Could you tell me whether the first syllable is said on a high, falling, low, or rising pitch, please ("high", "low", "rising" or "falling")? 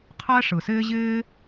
high